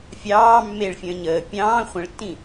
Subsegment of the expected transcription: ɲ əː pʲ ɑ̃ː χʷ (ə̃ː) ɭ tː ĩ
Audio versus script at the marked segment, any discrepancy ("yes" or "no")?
yes